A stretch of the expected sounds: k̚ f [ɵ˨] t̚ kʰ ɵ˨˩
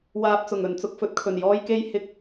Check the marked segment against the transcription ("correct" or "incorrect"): correct